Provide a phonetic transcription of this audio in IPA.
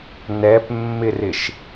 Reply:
n ɛ p mː ɪ r ɪ ʃ

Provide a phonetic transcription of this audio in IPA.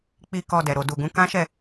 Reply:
k͡p i˧ k ɔ˧ d ɛ˨ ɾ o˨ d u˨ ɡ ũ˨˦ k ã˦ ʃ ɛ˦˨

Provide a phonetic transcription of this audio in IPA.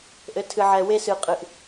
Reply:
ʔ ɘ˧˥ tʰ ɨ˧ ʕ ɛ˧ w e˥ s ɨ˧ qʼ ɨ˧ ʔ

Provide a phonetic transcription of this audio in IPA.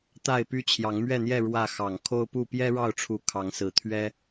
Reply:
t̪ a˥˨ ɪ̯ p y˦ t͡ɕʰ j ɑ˨˦ ŋ m ɥ ɛ˥˨ n̪ j ɛ˥˨ ɻ w ä˥˨ x ɑ˨˩ ŋ kʰ o˦ ʊ̯ p u˥˨ p j ɛ˦ ɻ ɑ˥˨ ʊ̯ ʈ͡ʂʰ u˨˦ kʰ ɑ˨˦ ŋ s ɹ̩˨˩ t̪ʰ ɥ ɛ˦

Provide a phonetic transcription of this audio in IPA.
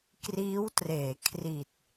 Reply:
k r iː˦˥ w t r eː˩˦ kʰ r i˨˩ t̚

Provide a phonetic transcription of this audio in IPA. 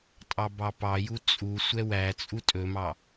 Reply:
tʼ ɑ b ɑ p ɑ j u t͡sʼ u sʷ ɛ w æ t͡sʼ u tʼ ɵ m ɑ

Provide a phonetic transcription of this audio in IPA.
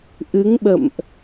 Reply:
ʔ ɨ˨˦ ŋ ɓ ə̰˧˨ m ʔ

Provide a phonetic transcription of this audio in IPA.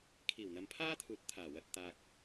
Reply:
kʰ iː˨˩ w n̪ ɐ˨˧ m pʰ aː˥ t̪ʰ uː˨ t̚ t̪ʰ aː˨˩ w ɐ˨ t̚ t̪ aː˨ k̚

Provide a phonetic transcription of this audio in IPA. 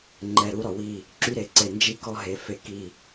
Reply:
ŋ͡ǃ ɛ˨ ɾ u˦ ɾ ɔ˨ w i˦˨ | ǁ y˦ ɾ e˨ ǀ e˨ n d͡ʒ i˦ k ɔ˦ ɦ e˨ f e˦ k i˦˨

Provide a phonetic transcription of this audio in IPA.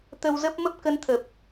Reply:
t̪ ə˧ w z ə˦˥ p̚ m ə˦˥ p̚ k ə˧ n t̪ʰ ə˨˩ p̚

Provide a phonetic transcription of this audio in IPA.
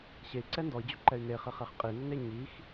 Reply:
ɕ e i̯ ǀ ɛ n d ɔ i̯ d͡ʑ ʏ ǃ ɛ y̯ n e χ ɪ χ ɛ χ qʼ i n ʏ n e ɲ i x

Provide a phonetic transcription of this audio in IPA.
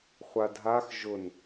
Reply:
χʷ a dʱ a x ʒ ʊ n

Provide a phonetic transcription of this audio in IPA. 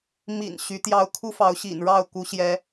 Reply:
m ḭ˨˩ n ɕ y˨˦ t̪ j ɑ˦ ʊ̯ kʰ u˦ f ɑ˨˦ ʊ̯ ɕ ḭ˨˩ n ɻ ɑ˥˨ ʊ̯ k u˨˦ ɕ j ɛ˨˦

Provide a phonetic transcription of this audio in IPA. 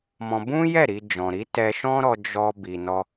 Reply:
m ɔ̃˧ b ũ˦ j ɛ˦˨ ɾ i˧ d͡ʒ ɔ̃˨ ɾ i˨˦ t ɛ˧ ʃ ɔ̃˦ ɾ ɔ˧ d͡ʒ ɔ˧ b i˨ n ɔ˧

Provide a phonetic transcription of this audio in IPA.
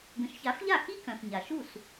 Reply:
ɡ ə̃˩˥ ʃ ç a˩˥ f ʎ a˥˩ x i˥ k œ̃˩ f ɲ a˩ ʃ u˥˩ s

